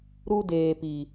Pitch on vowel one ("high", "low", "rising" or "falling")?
high